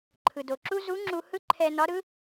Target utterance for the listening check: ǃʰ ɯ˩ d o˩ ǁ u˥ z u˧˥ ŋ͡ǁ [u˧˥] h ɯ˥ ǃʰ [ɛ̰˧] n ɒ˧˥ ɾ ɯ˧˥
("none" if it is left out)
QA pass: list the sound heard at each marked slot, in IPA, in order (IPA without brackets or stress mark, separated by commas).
u˧, ɛ˧